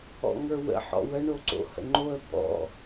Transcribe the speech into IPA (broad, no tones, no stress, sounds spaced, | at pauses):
ɔ̰ ŋ ə˞ w ə̰ ħ ɔ̰ w ə ɳ o ǀ o̰ h ə̰ ŋ͡ǃ o ə̯ b ɔ̰